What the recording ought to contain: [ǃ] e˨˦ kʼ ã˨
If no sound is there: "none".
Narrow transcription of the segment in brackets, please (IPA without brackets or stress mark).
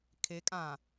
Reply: kʰ